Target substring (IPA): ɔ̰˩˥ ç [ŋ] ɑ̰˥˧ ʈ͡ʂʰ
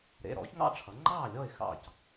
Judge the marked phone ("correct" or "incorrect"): correct